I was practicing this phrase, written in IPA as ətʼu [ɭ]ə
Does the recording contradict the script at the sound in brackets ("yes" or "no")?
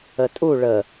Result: no